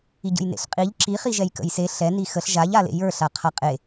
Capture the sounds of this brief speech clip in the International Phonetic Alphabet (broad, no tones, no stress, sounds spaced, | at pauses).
i ɟ ə̰ j n ḛ ɬ qʼ i ʎ ǁ i χ i ʒ ɛ j k ə̰ j s e ɬ ɛ n i x ə ɬ ʒ a ʎ a l ḛ j ə˞ ɬ a qʰ a qʼ e